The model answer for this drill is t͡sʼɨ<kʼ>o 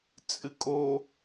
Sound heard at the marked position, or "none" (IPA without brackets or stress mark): kʼ